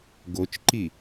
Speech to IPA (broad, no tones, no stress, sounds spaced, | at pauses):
ɡ o t͡ʃ ǃ i